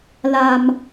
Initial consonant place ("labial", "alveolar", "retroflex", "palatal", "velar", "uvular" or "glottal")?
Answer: alveolar